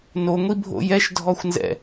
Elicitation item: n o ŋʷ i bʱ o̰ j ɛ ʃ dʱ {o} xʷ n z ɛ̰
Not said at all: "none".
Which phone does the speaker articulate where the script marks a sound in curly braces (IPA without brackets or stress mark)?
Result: ɔ